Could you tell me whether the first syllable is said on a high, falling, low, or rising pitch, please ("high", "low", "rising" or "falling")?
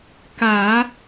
low